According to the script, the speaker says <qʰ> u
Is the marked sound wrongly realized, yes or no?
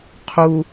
no